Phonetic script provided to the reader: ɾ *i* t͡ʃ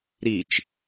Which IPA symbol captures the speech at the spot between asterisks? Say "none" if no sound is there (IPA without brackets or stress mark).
i